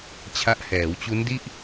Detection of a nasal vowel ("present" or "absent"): absent